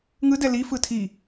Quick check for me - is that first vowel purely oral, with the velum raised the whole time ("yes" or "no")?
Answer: yes